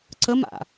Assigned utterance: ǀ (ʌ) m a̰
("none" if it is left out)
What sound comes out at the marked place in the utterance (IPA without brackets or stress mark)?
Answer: ə